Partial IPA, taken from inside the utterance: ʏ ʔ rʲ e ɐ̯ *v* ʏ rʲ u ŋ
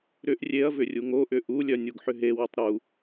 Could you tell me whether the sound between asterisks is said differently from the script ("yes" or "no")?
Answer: no